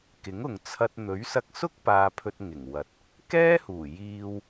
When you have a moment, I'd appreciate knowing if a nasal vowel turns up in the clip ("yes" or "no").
no